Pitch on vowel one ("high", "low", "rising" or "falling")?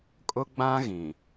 high